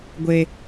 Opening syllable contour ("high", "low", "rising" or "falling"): low